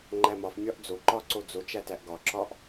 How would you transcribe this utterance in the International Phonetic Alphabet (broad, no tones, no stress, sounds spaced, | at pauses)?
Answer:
ŋ͡ǃ æ m ɒ f mʲ ɒ ʔ d͡z o ǃ ɒ ǀ o d͡z o t͡ʃ æ t æ ʔ ɡ ɒ ǁ ɒ ʔ